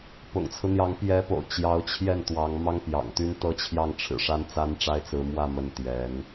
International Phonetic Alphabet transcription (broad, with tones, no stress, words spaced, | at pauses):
pʊ̰˨˩ŋt͡sʰɹ̩˦n̪jɑ˧˥ŋ pjɛ˧˥po̰˨˩ʊ̯ t͡ɕjɑ˧˥ʊ̯t͡ɕʰjɛ˥˩n t̪wɑ˧˥ŋ mɑ˥ŋpjɑ̰˨˩ŋt̪y˥n t̪ɤ˥˧t͡ɕʰjɑ˥˩ŋʈ͡ʂʰɻ̩˨˩ ʂa˥nt͡sa˥nʈ͡ʂa˥ɪ̯t͡sɹ̩˧˥ mwä˥˧ mə˥˩nt̪jɛ˧˥n